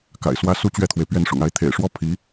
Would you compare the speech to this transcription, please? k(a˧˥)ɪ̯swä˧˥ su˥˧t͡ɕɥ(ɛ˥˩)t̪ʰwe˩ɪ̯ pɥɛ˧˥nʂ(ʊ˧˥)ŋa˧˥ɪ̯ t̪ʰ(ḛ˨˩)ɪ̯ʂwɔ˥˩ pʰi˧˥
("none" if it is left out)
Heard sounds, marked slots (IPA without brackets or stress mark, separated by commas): a̰˨˩, ɛ˥˩, ʊ̰˨˩, ḛ˨˩